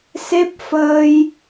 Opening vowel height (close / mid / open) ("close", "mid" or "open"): mid